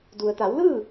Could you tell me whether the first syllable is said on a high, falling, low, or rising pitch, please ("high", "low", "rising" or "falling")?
low